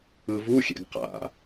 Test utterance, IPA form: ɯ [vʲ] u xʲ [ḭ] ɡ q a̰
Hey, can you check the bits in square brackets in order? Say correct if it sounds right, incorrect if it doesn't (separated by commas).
incorrect, incorrect